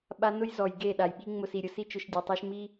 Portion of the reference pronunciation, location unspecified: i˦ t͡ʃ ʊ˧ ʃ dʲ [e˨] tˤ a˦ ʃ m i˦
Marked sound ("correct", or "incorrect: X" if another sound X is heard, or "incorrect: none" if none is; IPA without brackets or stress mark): correct